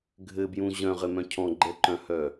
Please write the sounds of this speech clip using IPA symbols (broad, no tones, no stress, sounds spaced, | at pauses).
ɡʱ ɘ b j ũ ʑ œ̃ ʁ ɘ m œ̃ cʰ ɔ̃ ɡ͡ǃ ɛ ǃ œ̃ h œ